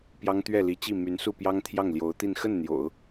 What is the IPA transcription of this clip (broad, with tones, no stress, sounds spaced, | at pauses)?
p j ɑ˥ ŋ t̪ ɥ ɛ˥˩ l i˧˥ t͡ɕ i˥˩ m y˧˥ n s u˥˩ p j ɑ˥ ŋ t̪ʰ j ɑ˥˩ ŋ l j o˧˥ ʊ̯ t̪ i˥˧ n x ə˥˩ n n̪ j o̰˨˩˦ ʊ̯